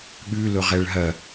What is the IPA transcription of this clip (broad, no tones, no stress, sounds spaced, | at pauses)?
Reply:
ɠ ʉ l ʊ ʁ ɛ ɭ ɦ ɐ